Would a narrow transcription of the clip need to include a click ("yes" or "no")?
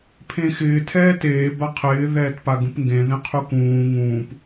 no